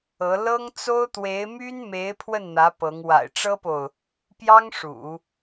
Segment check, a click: absent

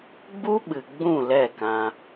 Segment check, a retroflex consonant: absent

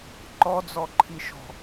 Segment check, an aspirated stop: present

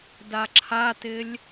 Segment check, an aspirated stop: present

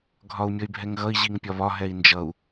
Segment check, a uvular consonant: absent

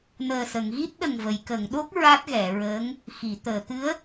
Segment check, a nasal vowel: absent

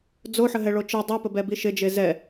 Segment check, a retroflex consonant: present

